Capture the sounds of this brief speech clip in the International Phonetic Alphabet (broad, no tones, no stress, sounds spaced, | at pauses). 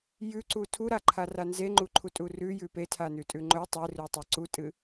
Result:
j ʉ ǀ u tʰ u ɾ a ǃʰ a r a n z e ŋ͡ǃ u ǃʰ u tʼ u r ʉ j ʉ p e tʰ a n ʉ tʼ ʉ ŋ͡ǃ ɵ tˤ e r u tˤ a ǀ u tʼ ɨ